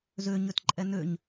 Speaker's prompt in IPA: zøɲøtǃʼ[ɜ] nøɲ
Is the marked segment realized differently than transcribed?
yes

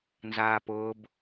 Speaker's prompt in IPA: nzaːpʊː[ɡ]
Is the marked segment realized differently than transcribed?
yes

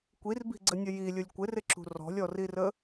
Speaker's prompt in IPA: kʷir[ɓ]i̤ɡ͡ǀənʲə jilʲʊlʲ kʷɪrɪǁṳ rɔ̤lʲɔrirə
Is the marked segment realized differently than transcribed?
yes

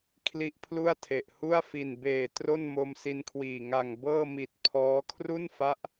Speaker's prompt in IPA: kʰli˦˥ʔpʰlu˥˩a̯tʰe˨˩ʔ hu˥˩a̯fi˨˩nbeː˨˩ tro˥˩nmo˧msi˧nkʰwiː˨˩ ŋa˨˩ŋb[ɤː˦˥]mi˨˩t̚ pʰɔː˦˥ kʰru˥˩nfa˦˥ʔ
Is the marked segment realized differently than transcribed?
yes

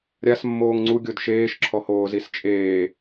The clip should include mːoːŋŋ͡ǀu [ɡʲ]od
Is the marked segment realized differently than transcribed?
no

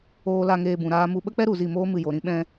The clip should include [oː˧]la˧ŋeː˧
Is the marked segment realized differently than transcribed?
no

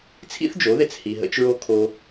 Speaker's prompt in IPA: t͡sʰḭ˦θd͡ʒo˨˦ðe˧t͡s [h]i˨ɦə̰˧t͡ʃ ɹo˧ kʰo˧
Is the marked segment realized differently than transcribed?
no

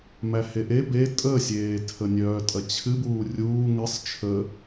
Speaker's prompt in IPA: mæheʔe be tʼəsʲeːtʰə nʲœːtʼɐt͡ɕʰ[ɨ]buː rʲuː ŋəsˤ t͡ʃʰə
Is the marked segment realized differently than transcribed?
no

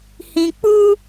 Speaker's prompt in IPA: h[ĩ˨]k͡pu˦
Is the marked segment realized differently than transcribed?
no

